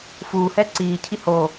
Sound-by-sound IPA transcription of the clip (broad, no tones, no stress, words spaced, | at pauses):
fuːhɛ ǀiːcʰi ho